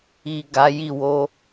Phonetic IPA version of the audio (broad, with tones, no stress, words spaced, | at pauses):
i˨ ɡa˨˦ji˦˨ wo˧